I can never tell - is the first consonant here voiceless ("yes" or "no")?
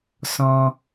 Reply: yes